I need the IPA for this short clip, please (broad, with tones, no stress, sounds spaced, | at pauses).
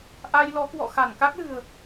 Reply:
ʔ a˧ j l ɔ˨˦ k w ɔ̰˧˨ x a˧˩ n k a˦˥ k̚ l ɨ̤˨˩ ə̯